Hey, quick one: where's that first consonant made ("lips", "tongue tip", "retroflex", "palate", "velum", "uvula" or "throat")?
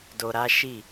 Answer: tongue tip